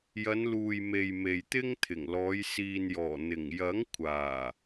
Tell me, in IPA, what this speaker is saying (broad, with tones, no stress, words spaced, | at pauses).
jɐ˨˧n luː˨jme˨j me˨jt̪ɪ˥ŋt̪ʰɪ˨˩ŋ lɔː˨˧j siː˨njɔː˨˩ n̪ɪ˨˩ŋjɐ˨˥ŋkʷʰaː˨˩